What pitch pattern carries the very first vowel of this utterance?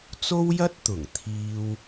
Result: high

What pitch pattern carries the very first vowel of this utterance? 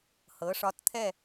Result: rising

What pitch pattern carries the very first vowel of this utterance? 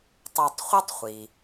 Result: low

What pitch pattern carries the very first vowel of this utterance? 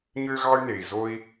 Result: high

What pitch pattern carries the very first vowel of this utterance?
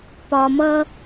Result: low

